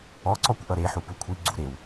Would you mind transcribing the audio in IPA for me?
ɔǀɔkʷ ʔʌɾeħu pukʷʰi ɡ͡ǀuɾew

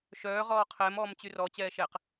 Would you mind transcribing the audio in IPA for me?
ʃœːʁɔː qʰɛːmɔːmt͡ɕy rɔt͡ɕɛː ʃɛq

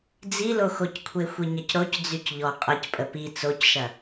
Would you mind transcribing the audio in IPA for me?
d͡ziloxockʷʰe xʷiɲɐcɾoc d͡zycʎɔ qʼɐcpʼə pi t͡socʃɐ

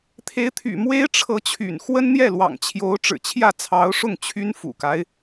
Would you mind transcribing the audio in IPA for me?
t̪ʰe˧˥ɪ̯t̪ʰy̰˨˩ mwe˥ɪ̯ʈ͡ʂʰɤ˧˥t͡ɕʰy̰˨˩n xwə˥nn̪jɛ˥˩lwɑ̰˨˩ŋ t͡ɕʰjo˧˥ʊ̯ ʈ͡ʂɻ̩˨˩t͡ɕʰjä˥˩ t͡sʰɑ˧˥ʊ̯ʂʊ˥˩ŋ t͡ɕʰy˥n fṵ˨˩ka˦ɪ̯

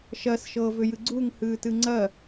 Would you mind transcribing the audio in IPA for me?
ʃɜsʃɤːvʏjɨ ɡ͡ǀuŋhɨːtɨ ŋ͡ǀɜ

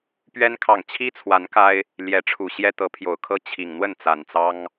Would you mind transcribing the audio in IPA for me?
pɥɛ˦nkʰɑ˨ŋ t͡ɕʰi˦t͡sʰwa˨˦n ka˦ɪ̯ | ljɛ˨˦ʈ͡ʂʰu˨˩ɕjɛ˦ t̪ɤ˨˦pʰjo˨˩ʊ̯kʰɤ˦ t͡ɕʰi˨˩ŋn̪wə˥˨n t͡sa˨˩nt͡sɑ˦ŋ

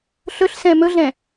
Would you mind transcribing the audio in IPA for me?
ɬɵɬsɛ̃ mɵɮɛ̃

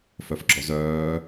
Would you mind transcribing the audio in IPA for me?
fœfɡ͡ǁɔzœː

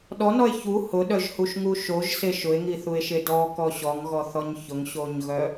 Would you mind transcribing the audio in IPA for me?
ɗɔnɔe̯ çu hʊɗœʒhuʃŋu ʃoʒse ʃʊe̯ŋiθue̯ʃe dɔkɔ ɕɔŋɣɔθɔɲ çʊŋɕoɲɣœ

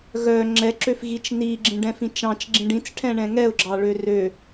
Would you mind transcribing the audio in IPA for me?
ɣœ ŋ͡ǁɛǁøfɣit͡ʃ niɡ͡ǁĩɖɛ̃fĩ t͡ʃɑ̃t͡ʃ ɡ͡ǁĩɖĩt͡s ʈʰɛ̃ɳɛ̃ŋɛʊ̯ɡ͡ǁɑ ɭørø

